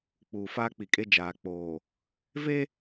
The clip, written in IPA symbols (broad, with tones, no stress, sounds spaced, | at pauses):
k͡p uː˨ f aː˦ k͡p i˨ kʼ e˦ d͡ʒ aː˨ k͡p oː˨ | v e˦